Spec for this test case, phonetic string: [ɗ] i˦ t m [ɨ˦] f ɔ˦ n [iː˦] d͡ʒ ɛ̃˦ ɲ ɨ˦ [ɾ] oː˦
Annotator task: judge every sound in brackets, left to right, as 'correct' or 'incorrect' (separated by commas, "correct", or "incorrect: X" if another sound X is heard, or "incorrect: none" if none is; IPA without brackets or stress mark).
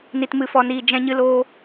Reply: incorrect: n, correct, correct, incorrect: l